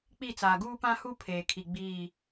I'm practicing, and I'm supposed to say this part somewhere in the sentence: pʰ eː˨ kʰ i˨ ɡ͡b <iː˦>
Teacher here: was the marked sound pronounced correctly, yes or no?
no